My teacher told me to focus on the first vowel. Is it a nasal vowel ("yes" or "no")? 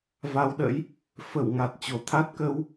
no